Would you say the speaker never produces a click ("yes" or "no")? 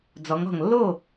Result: yes